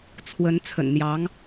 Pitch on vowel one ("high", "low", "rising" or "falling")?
rising